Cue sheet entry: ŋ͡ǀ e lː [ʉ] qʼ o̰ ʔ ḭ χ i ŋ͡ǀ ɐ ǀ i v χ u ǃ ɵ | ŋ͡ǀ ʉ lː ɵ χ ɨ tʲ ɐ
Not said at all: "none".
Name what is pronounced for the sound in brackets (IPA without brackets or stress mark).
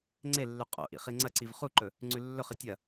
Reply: ʉ